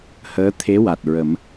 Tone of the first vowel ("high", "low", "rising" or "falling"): rising